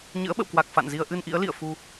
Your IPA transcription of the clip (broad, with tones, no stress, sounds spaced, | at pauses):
ɲ ɨ̰˧˥ ə̯ ɓ ə̰˧˨ w k w a˨˩ k̚ f a̰˧˨ n z i˧ ə̯ ʔ ɨ˧ n ʔ ḭ˧˥ ə̯ l ḭ˧˨ ə̯ f u˧